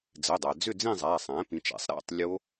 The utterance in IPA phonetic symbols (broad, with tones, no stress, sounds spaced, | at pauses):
d͡z ɘ˩˧˩ dˤ æ˩ d͡z ʏ˦˨ d͡z ĩ˦˨ zˤ æ˩˧˩ sˤ æ̃˩˥ p ĩ˩˥ t͡ʃ æ̰˩˥ sˤ ɾ æ̰˩˧˩ tˤ lʲ o˦˥